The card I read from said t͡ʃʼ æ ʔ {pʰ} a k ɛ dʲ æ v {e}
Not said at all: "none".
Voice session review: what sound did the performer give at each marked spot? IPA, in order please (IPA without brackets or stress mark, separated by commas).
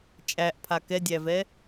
pʰ, ɛ